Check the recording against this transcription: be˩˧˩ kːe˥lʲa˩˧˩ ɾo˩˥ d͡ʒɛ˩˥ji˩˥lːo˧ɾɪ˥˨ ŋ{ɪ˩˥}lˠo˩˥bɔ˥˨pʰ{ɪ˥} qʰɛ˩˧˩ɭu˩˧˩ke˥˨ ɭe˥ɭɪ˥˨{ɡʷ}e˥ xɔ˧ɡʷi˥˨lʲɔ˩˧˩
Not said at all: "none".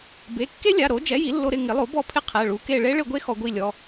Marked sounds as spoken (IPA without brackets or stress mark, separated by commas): ɪ˩˥, ɪ˥, ɡʷ